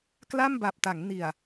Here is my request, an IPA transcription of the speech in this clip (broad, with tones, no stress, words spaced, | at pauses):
kla˥˩mba˨˩p̚ta˩˦ŋ ni˨˩a̯